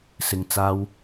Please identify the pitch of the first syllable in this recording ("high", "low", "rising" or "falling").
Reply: low